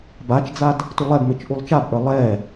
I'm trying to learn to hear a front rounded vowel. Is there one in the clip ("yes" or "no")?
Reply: no